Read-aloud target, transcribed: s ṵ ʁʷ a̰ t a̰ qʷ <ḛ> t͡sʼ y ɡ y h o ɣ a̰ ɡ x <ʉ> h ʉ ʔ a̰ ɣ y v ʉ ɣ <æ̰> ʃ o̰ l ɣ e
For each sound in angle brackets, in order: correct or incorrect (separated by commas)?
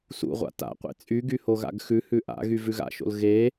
correct, correct, incorrect